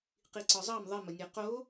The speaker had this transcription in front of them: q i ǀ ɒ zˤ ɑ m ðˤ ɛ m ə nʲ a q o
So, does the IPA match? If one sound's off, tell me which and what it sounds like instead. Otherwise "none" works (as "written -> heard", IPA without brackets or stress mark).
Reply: none